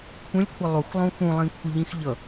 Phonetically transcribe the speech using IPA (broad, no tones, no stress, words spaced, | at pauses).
kʷʰə̃lʲkʷʰə lˠuxlˠũ xũlˠĩkʷʰəʎĩx ʎʌ